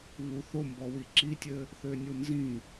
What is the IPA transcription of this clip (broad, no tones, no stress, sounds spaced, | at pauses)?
β u θ o m b ɔ w i ǁ i tʲ ɘ | θ ø nʲ u n z ĩ